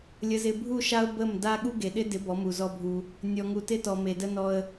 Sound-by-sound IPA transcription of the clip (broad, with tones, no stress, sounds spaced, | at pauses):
lʲ ə˨ z ɪ˨ bʱ u˦˨ ʃ a˦ ʊ̯ b ə˦˨ m d a˦ ɠ u˦ ɡ e˨ ɗ ɪ˦ d ɪ˨˦ b ɔ˨˦ m u˨ z ɔ˦ bʱ u˦ | nʲ ɔ˨ ŋ u˨ t ɪ˦ t ɔ˨ m e˨ d ə˦ n ɔ˦ ə̯